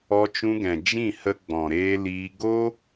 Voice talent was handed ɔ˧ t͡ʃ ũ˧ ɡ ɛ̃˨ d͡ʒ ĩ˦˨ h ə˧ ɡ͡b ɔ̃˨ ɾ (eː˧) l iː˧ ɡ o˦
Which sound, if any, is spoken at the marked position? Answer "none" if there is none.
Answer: eː˧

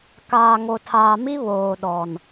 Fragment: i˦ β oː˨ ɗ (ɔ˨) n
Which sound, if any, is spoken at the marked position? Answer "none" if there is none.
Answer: ɔ˨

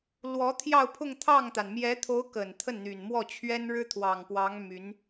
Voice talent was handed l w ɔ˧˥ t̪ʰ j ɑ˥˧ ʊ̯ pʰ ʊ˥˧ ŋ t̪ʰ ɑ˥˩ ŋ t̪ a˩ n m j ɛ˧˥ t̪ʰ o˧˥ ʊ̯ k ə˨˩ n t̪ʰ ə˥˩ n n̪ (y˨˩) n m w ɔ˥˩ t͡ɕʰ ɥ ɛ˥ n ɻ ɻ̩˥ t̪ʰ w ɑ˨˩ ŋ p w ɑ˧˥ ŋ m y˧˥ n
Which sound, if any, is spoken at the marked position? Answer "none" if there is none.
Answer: y˨˩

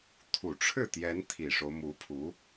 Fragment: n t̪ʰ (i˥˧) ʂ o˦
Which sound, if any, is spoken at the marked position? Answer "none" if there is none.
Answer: i˨˩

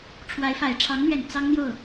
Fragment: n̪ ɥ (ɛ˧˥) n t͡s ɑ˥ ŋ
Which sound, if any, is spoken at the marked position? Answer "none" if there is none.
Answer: ɛ˨˩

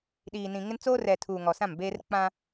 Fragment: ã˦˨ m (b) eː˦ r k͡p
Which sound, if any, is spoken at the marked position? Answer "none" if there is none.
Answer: b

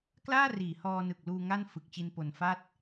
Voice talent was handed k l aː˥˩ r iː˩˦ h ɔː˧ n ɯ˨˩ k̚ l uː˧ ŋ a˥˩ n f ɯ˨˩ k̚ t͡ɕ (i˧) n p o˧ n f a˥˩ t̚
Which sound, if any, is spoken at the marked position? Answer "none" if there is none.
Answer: i˧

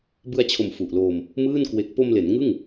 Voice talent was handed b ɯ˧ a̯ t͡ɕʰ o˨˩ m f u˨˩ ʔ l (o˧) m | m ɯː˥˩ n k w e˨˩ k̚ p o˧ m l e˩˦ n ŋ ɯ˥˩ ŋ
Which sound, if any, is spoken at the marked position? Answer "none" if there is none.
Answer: oː˧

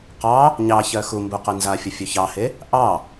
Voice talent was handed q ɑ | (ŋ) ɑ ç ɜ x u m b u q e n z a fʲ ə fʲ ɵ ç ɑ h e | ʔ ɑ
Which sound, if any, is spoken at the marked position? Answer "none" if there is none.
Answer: ɲ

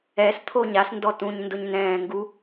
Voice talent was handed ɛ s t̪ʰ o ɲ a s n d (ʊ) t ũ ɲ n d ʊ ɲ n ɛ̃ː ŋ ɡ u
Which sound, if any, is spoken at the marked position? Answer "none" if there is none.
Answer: ɔ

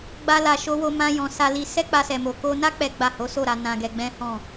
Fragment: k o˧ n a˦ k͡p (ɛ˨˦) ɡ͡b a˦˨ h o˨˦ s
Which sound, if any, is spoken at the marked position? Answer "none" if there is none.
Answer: ɛ˦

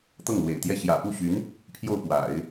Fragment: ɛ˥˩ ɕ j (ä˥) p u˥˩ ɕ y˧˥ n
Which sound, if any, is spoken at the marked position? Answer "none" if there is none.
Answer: ä̰˨˩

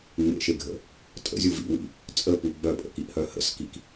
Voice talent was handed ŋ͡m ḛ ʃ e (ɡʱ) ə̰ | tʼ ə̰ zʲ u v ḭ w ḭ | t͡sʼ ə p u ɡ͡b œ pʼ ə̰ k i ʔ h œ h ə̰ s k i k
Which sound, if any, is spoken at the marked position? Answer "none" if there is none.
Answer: ɡʱ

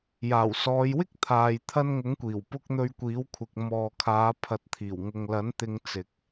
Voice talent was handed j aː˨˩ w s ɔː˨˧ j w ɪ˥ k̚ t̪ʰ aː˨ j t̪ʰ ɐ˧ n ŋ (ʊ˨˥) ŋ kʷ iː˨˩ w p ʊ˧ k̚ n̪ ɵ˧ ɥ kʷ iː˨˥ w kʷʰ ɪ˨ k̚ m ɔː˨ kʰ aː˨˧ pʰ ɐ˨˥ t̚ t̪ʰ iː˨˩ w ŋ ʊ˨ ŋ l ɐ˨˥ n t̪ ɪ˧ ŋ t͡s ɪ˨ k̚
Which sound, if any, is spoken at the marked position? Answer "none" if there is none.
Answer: ʊ˨˥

